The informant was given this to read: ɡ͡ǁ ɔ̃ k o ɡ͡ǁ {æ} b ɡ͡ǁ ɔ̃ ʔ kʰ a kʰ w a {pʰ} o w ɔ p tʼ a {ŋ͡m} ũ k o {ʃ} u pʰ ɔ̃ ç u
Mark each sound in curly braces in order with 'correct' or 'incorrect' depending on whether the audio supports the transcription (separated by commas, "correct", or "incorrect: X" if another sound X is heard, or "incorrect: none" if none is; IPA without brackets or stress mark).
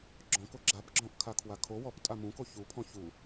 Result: incorrect: a, incorrect: kʰ, incorrect: m, incorrect: ç